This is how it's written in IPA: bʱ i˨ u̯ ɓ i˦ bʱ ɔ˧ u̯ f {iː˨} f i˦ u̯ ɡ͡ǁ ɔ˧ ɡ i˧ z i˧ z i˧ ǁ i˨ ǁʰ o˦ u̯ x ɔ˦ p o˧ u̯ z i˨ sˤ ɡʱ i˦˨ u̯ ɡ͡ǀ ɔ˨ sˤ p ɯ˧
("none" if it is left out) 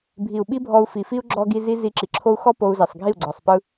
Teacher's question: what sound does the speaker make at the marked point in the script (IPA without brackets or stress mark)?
i˨